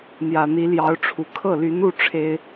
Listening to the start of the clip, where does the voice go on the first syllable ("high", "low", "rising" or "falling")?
low